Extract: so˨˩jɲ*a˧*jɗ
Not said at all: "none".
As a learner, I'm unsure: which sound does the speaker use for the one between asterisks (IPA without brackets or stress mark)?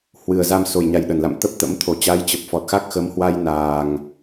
a˨˩